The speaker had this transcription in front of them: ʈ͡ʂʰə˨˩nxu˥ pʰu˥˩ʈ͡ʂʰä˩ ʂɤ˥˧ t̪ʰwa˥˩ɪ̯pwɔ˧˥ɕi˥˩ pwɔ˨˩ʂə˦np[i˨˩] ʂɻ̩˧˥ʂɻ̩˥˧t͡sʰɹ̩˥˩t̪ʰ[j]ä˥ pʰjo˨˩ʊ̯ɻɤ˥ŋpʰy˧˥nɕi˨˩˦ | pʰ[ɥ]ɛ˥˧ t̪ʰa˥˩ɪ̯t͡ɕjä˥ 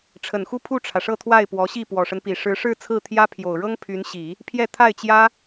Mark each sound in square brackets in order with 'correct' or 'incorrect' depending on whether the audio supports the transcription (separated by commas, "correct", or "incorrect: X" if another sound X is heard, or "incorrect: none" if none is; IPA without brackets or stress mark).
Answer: correct, correct, incorrect: j